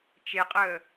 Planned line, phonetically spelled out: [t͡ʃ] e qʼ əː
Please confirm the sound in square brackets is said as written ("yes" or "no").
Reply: yes